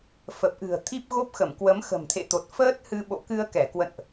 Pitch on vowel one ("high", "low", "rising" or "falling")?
low